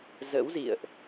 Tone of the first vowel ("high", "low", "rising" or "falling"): rising